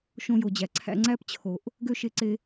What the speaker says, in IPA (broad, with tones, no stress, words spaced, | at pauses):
ʃõ˧jo˨d͡ʑæ˨ǀʰæ̰˧ ŋ͡ǀæ˦pt͡ɕʰo˨ʔ | ɡø˦ʃe˧ǀe˧